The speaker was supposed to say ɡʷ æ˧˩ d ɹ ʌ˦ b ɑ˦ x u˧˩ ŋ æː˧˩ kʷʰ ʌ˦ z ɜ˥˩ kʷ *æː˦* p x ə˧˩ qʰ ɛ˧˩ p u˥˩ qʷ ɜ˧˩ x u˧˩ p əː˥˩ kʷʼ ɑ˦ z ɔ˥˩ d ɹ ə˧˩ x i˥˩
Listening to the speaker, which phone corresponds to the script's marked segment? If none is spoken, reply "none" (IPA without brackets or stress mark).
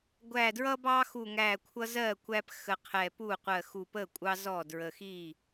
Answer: æ˦